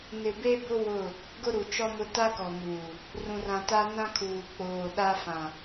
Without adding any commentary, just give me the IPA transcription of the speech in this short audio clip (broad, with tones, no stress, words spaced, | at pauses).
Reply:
nɪ˨be˦bʊ˦ wʊ˦˨ | ɡʊ˦ɾu˨t͡ʃɔ˦mʊ˦ ta˦kɔ˨muː˨ | rũ˨rã˨ta˦ nã˦kʰuː˨ k͡poː˨ ɗa˦ fã˨